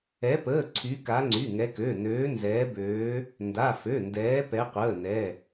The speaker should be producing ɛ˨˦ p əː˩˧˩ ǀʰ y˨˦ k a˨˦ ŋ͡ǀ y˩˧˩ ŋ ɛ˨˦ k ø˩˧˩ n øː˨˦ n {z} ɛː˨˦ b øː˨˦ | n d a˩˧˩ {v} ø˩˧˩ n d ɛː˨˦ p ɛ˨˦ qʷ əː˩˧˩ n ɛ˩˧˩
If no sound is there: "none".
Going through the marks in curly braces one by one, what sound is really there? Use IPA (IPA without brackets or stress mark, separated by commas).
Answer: z, f